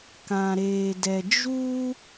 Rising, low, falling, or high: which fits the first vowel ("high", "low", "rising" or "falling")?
low